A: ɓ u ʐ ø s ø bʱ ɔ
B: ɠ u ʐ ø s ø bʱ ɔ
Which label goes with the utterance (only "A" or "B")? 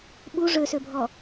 A